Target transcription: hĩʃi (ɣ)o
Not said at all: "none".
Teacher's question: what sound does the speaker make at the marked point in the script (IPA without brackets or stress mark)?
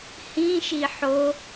ħ